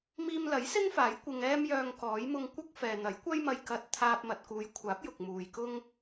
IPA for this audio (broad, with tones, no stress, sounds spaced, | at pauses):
m iː˧ m l ɐ˨˥ j s ɪ˥ ŋ f aː˨˥ j kʷ ɪ˧ ŋ ɛː˥ m j œː˧ ŋ k ɔː˨˥ j m ʊ˧ ŋ kʷ ɐ˥ k̚ f ɛː˨ n̪ ɐ˨˥ j kʷ ɐ˥ j m ɐ˧ j k ɐ˧ t̚ t̪ʰ aː˧ p̚ m ɐ˨ t̚ k uː˨˧ j kʷʰ aː˨˥ p̚ j ʊ˨ k̚ m uː˨ j k ʊ˥ ŋ